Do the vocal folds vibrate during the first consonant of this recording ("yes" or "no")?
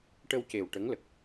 no